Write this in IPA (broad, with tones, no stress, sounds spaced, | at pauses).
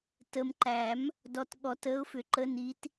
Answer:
t ə˨ m ǃ æ˨˩˦ m | d ɔ˨ t ɠ ɔ˨˩˦ t əː˨˦ ʊ̯ f ʏ˨˩˦ ǃ ə˨˦ n i˨˦ t